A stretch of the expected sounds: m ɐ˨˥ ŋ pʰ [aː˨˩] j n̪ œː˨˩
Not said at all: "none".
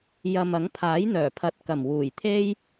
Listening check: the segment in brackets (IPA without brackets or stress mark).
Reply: aː˨˥